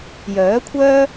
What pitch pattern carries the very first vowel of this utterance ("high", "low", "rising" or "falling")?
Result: rising